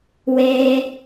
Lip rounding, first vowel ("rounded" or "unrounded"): unrounded